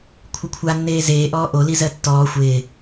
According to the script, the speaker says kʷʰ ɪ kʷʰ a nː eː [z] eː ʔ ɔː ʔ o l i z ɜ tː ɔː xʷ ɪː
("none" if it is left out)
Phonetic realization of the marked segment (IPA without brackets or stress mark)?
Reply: z